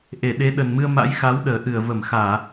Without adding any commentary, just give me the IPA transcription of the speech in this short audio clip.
ʔe˧˩ɗe˨˦ ɗə˨˩nmɨ˧ə̯ ma̰˧˥jxa˨˦wɗəː˨˩ ʔɨ˧˩ə̯və˧˩mxaː˧˩˨

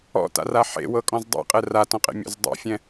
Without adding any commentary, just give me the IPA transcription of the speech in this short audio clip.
ɔ̰ta̰ra ħḛwɤkʼɔ̃z dˤḛqʼɛ ratɔ̃qʼḛmʲɔ̰z dˤḛfʲɛ̃

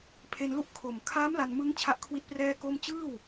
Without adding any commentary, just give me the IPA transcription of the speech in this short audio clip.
pʰe˧nlu˥˩ʔ kʰo˨˩mkʰaː˦˥m la˧nmɯ˦˥ŋ t͡ɕʰa˦˥ʔkʰwi˦˥t̚ prɛː˥˩ko˥˩m t͡ɕɯː˥˩w

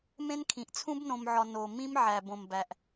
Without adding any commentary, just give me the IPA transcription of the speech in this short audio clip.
mẽ˦nkʰĩ˨ʔ t͡sʰũ˦bnõ˨mʕɒ˨ no˨ mĩ˦mʕæ˨ bõ˨mbæ˨ʔ

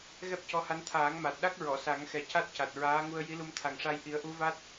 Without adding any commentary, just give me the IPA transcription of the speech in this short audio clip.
ɣɛ˦˥p̚cɔ˧˥ha˧˥n t̪ʰaː˨˩˦ŋma˨˩t̚ɗa˦˥k̚ ɹɔ˨˩˨sa˨˩˦ŋxɛ˨˩ca˦˥t̚ ca˨˩t̚ɹaː˧˥ŋu˧ə̯ ji˧˥lu˧mt̪ʰa˨˩ŋʂa˧j ʔi˨˩˦ə̯ʔu˧˥va˦˥t̚

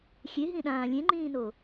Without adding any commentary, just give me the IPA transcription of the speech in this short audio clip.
xʲeɦĩɗãː lʲẽŋ͡ǃĩːno

